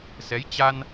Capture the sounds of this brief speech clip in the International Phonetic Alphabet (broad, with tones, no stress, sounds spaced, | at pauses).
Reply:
s ɛ˨˦ j t͡ɕ a˧ n